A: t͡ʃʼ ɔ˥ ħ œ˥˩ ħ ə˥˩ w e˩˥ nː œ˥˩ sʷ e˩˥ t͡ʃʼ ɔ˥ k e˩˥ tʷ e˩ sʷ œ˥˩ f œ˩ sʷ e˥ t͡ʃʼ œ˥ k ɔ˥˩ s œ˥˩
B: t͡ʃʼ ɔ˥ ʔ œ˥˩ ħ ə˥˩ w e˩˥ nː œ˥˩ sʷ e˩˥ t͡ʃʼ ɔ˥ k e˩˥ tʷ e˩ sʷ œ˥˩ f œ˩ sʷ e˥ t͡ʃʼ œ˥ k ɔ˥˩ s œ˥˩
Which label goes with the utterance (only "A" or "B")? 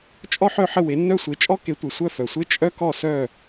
A